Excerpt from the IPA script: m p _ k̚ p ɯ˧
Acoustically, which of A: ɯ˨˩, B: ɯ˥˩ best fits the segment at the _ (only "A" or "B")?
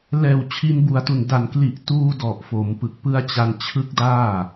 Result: A